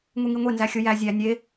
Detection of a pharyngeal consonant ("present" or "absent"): absent